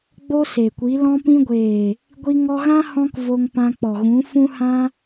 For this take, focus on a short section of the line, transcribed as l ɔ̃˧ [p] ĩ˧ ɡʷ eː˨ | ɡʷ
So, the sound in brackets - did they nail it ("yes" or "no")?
yes